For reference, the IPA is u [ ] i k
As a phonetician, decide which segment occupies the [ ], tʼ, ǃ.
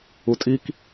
tʼ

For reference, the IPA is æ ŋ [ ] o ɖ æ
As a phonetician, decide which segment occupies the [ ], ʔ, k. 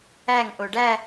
ʔ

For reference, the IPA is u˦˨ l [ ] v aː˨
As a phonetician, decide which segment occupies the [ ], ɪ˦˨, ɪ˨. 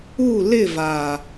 ɪ˦˨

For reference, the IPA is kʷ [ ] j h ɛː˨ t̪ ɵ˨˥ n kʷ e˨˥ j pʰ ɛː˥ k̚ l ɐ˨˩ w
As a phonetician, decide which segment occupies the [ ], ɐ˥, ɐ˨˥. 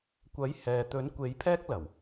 ɐ˨˥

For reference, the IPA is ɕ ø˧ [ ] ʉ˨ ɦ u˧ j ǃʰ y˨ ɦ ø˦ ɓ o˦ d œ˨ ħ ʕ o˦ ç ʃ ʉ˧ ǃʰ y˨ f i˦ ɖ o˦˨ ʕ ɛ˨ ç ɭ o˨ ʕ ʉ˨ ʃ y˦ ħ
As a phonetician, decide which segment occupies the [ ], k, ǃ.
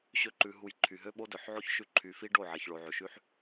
ǃ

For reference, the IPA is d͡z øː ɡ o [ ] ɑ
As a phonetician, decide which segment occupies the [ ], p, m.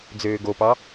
p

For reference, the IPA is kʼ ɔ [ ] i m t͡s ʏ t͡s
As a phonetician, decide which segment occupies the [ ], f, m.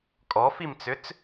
f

